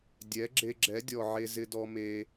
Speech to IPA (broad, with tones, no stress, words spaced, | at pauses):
dʲɛ˨˦ɡ͡ǁe˧ ɡ͡ǁɛ˨˦dʲɔ˨ ʕe˦zɪ˦ dɔ˧me˧